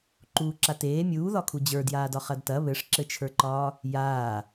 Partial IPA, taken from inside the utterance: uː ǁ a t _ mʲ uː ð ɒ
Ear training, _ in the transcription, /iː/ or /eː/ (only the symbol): eː